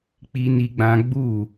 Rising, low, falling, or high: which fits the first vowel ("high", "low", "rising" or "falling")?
high